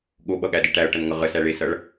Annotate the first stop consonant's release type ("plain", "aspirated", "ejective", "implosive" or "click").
implosive